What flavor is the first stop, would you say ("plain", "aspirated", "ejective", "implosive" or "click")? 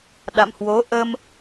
implosive